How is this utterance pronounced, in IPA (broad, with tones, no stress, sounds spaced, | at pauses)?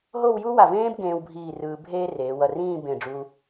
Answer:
ɦ o˥˧ w j u˥ w a˧˩ v ẽː˥ b ɡ ẽː˧ w bʱ iː˧˩ r ɯː˧ bʱ eː˥ r eː˩˧ w ʌ˧˩ r ĩː˥˧ b ẽ˧˩ ɖ͡ʐ u˧